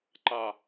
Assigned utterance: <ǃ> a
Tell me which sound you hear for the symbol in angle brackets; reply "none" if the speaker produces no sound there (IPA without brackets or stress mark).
ǃ